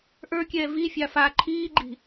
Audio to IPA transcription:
ʔ ə˞ kʲ ɛː v i fʲ a f a ǃʰ iː ɡ͡ǃ i̤

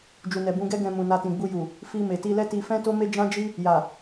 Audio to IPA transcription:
d͡ʒ u˨ n ɛ˨ b ũ˧ ɡ ɛ˦ ɡ ɛ̃˧ m ũ˨ n a˧ t ĩ˨ ɡ͡b u˧ j u˨ | f i˧ m e˨ t i˧ l ɛ˦ t i˧ f ɛ̃˦ t o˦ m e˦ d͡ʒ ã˦ d͡ʒ i˦ | j a˨

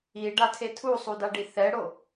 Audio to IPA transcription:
i ɖ a tʰ e tʰ u sˤ u d a ɖ i θ ɛ ɽ o

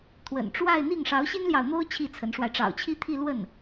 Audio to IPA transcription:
t̪ʰ w ə̰˨˩ n ʈ͡ʂ w a˥˧ ɪ̯ n̪ i˥˩ ŋ ʂ ɑ˧˥ ʊ̯ ɕ i˥ n l j ɑ˨ ʊ̯ n̪ o˥ ʊ̯ t͡ɕʰ i˥˩ t͡sʰ ə˧˥ n ʂ w a˧ ɪ̯ ʈ͡ʂ ɑ̰˨˩ ʊ̯ t͡ɕʰ i˥ t̪ʰ i˥˧ l w ə˥˩ n

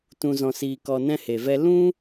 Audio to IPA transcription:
t ũ˧ z ɔ̃˧ s iː˧ k ɔ˧ n ɛ̃˦ h e˨ v ɛ˦ l ũ˦

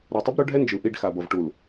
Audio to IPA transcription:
ɾ o˨ tˤ ɯ˦ b ɾ o˦ ɖʱ ɛ˦ n d͡ʒ ɯ˨ ʔ i˦˨ ɖ x a˨ b ʌ˨ v ʈ u˨ l

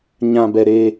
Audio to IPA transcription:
ɲ ã˨ b ɛ˨ ɾ e˦

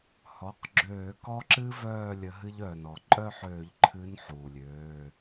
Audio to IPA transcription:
h ɔ˩˧˩ q ɡ͡ǁ øː˧˩˧ k ɔ˦ ǁ ɨ˦ v œː˥˨ lʲ ə˨˦ ɦ ɨ˦ ʎ œː˩ n ɔ˩ ǃʼ œ˥˨ ħ øː˧˩˧ ʎ ǃʰ ɨ˨˦ n ħ uː˩ lʲ øː˩˧˩

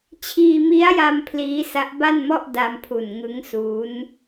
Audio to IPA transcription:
t͡ɕʰ iː˧ m i˦˥ a̯ j a˧ m pʰ l iː˦˥ s a˦˥ ʔ b a˥˩ n m ɔ˥˩ ʔ d a˧ m pʰ u˨˩ n ŋ ɯ˦˥ ŋ s uː˦˥ n

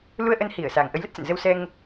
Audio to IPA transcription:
l u˧ ə̯ ʔ ə˧ n h i˧˩ ə̯ s a˨˩ ŋ ʔ ə˨˦ j l ə˦˥ t̚ s ə̰˧˨ n z ə˧ w s ɛ˧ ŋ

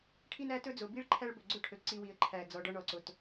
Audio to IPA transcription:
ʈʰ i˦ n æ˦ t ɵ˦ d͡z o˨ b i˦ ɭ ǃʰ æ˦ ɭ b ɵ˨ ɡ͡ǀ ɵ˦ ʈʰ ɵ˨ ǀ i˦ w i˨ ə̯ ǃʰ æ˨ d͡z ɔ˨ ɖ ɔ˦ ɳ ɔ˨ ǀ o˨ t

